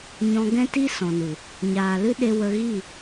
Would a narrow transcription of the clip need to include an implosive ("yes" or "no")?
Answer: yes